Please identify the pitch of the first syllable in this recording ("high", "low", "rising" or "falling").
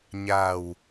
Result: low